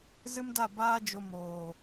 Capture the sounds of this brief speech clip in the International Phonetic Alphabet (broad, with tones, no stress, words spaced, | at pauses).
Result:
zɨ˦mda˦˨ baː˦d͡ʒo˧ moː˨